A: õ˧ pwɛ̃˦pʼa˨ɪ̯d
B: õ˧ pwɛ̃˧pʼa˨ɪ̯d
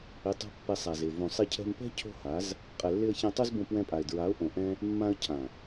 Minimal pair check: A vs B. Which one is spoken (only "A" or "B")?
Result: B